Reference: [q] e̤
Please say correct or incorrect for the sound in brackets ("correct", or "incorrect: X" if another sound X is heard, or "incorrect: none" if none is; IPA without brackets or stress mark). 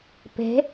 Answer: incorrect: p